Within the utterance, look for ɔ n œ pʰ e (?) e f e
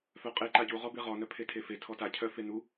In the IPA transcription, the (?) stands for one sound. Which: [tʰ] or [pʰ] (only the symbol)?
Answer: tʰ